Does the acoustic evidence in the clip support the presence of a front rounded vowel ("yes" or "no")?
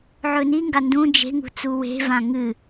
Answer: no